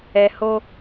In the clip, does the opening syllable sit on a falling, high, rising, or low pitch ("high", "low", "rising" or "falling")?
low